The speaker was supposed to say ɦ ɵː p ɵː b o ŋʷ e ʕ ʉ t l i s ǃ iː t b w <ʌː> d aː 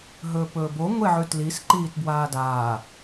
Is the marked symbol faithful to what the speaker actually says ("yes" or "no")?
no